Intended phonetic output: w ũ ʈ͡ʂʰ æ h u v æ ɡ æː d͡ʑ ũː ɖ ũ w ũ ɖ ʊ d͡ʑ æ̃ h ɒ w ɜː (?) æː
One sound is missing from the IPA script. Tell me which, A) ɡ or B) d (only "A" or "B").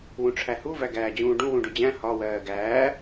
A